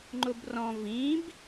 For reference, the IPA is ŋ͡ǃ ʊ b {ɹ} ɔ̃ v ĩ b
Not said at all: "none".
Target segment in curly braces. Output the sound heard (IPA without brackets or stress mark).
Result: r